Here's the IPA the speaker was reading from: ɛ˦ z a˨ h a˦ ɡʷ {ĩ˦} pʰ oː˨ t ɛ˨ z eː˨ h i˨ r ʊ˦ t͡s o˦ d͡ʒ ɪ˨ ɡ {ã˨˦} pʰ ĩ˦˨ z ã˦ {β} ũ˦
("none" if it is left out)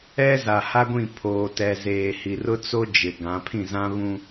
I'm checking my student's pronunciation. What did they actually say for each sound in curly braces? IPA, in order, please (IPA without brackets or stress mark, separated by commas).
ĩ˦˨, ã˨˦, β